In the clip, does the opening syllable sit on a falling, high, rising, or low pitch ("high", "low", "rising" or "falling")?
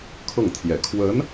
falling